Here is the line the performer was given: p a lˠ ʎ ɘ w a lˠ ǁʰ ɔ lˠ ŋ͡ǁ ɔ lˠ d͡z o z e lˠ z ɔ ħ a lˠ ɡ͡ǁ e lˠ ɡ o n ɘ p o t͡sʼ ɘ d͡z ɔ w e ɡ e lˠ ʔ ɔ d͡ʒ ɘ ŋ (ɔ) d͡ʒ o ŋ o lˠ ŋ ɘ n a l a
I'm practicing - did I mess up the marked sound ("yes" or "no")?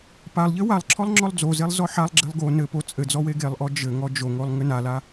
no